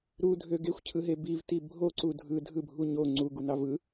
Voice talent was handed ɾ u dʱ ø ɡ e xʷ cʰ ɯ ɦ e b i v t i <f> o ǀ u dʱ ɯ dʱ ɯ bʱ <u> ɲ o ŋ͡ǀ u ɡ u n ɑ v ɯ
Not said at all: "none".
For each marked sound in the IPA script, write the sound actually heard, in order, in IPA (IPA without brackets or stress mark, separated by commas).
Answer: bʱ, u